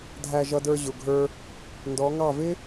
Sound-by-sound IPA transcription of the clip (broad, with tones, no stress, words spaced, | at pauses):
dʱæ˧ʒʌ˧də˞˧ ʑʊ˨ɡʱə˞˧ | ndɔ˨˦ŋɑ˦˨ vɪ˦